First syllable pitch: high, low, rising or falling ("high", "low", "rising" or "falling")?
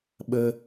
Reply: high